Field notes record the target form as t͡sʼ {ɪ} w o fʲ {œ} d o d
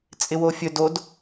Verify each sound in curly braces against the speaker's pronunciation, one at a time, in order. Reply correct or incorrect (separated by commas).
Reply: correct, incorrect